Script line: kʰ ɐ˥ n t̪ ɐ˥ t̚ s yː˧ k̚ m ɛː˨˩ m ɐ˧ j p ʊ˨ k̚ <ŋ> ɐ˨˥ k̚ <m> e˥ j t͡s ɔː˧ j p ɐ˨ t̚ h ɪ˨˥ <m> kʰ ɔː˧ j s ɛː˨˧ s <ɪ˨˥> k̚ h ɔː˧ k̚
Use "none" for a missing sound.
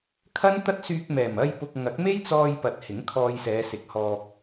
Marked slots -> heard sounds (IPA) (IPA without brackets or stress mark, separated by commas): ŋ, m, ŋ, ɪ˨˥